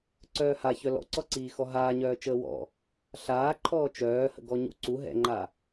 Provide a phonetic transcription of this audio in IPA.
ǀ œː h a ç œ l ɔ̰ ǀ ɔ ǀ iː x ɔ ɦ aː ɲ œː t͡ʃ əː w ɔ̰ | ɬ aː ǃʰ ɔː t͡ʃ œː h ə̰ ɡ ɔ ɲ ṵ ǀ u ɦ ɛ̰ ŋ͡ǃ a

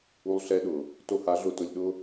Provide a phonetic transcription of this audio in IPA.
u˦ lˠ ɬ ɛ˦ ɗ ʊ˨ | t o˧ h a˨˦ ɮ ʊ˧ t ʊ˧ lʲ ɗ ʊ˦

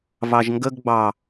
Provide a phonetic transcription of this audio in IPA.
v ɑ ʒ ŋ ɡ ə ɡ ɡ͡b ɑ

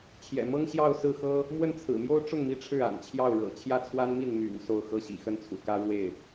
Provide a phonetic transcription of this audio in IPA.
t͡ɕʰ j ɛ̰˨˩ m ɤ˥ ŋ ɕ j ɑ˥˧ ʊ̯ s ɹ̩˥˩ x ɤ˥ | m w ə˥˩ n t͡sʰ ɹ̩˨˩ m j o˥ ʊ̯ ʈ͡ʂ ʊ˥˩ ŋ m i˧˥ ʈ͡ʂʰ ɻ̩˥˩ a̰˨˩ n t͡ɕʰ j ɑ˥˩ ʊ̯ ɻ ɤ̰˨˩ t͡ɕʰ j ä˥˩ t͡sʰ w a˥ n m i˥˩ n m y̰˨˩ n s o˥˩ ʊ̯ x ɤ˥ ɕ ḭ˨˩ x ə˥˩ n t͡sʰ ṵ˨˩ k ä˥ ɻ w e˥˩ ɪ̯

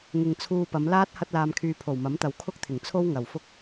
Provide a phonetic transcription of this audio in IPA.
ŋ ɪ˨ ŋ t͡sʰ uː˧ p ɐ˨˧ m l aː˥ t̚ h ɐ˥ t̚ l aː˧ m kʰ yː˧ pʰ o˨˩ w m ɐ˨˥ m t̪ ɐ˨ w kʰ ʊ˥ k̚ t̪ʰ ɪ˨˩ ŋ t͡sʰ o˥ w ŋ ɐ˨˩ w f ʊ˥ k̚

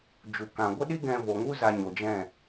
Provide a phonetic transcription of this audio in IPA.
d͡ʒ u˨ k ã˨ ɡʷ ə˦ ɗ i˦ ɡ ɛ̃˧ v o˨ ŋ u˦ z a˧ ɲ o˨ d͡ʒ ɛ̃˦˨

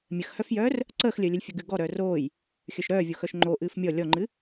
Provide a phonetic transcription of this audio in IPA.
mʲ ə x h œ f j œː r | ǀ əː x lʲ əː lʲ ə lʲ fʲ ə ɡ ɨ ɡ ɔ ɾ œː r oː j | xʲ œ ʃ ɾ œː vʲ o x œ ʃ ŋ͡ǃ o ʔ ɨː f mʲ ɔ lʲ ɔ ŋ͡ǃ ɨ

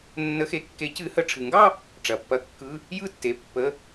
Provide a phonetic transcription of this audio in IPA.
nː ə˨˩˦ x e˩˧˩ kː e˨˩˦ c ɨ˨˩˦ h ə˩˧˩ ʈ͡ʂʰ ɨ˩ ŋ ɡ ɑ˥˧ | ʈ͡ʂ ɐ˩ pː ɐ˨˦ kː ɯ˩˧˩ | j ɯ˥˧ tː e˩˧˩ pː ə˩˧˩

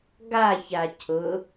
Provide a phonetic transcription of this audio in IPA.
ɡ a ç a cʰ ʊ

